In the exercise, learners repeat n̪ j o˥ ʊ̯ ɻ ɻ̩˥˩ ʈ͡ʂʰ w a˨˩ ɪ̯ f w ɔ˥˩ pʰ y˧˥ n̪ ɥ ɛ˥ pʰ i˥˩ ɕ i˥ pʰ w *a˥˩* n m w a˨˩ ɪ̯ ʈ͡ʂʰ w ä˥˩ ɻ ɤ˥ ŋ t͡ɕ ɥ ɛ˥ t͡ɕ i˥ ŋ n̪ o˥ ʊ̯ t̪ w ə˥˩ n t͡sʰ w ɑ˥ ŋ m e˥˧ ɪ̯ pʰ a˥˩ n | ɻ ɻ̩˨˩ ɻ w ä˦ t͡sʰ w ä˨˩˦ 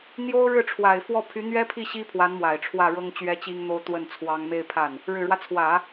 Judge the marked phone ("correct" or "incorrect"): incorrect